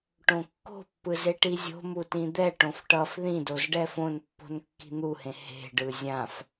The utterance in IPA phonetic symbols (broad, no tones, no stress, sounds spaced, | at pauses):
ʈ õ kː o̤ pː ɯ z e ʈ i zʲ o̤ m u t ĩ d̪ ɛ ʈ õ f ʈ ʌ f ð ĩ d o z ɖ ɛ f õ n pː o̤ n kː i̤ n̪ u h ẽ h e̤ ɖ ɯ zʲ ã f